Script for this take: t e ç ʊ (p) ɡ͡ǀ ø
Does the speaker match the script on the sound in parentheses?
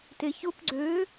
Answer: yes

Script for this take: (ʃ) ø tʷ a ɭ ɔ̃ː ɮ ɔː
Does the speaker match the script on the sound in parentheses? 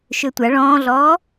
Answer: yes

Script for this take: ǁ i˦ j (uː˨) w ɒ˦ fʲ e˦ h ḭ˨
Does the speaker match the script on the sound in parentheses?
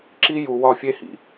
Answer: no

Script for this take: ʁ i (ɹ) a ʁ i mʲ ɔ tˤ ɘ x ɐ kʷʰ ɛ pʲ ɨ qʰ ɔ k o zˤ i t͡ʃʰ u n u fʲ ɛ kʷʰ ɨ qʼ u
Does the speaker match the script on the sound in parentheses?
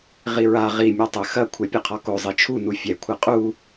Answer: yes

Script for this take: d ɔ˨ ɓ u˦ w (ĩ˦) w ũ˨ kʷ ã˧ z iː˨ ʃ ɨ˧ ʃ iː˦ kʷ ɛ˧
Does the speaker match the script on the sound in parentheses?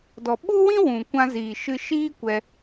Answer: yes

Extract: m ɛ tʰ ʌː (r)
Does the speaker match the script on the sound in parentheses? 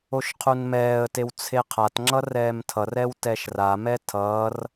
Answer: yes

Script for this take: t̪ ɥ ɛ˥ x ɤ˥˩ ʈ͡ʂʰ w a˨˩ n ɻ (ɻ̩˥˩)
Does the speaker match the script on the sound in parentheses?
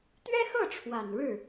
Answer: yes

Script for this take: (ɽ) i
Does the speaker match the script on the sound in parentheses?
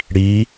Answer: yes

